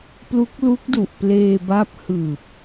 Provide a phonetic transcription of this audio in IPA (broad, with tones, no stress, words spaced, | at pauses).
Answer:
plu˦˥k̚lu˦˥k̚du˨˩ʔ pleː˧ba˦˥p̚ hɯː˨˩p̚